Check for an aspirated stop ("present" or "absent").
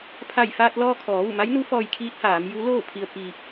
present